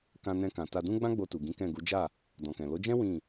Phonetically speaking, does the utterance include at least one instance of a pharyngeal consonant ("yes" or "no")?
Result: no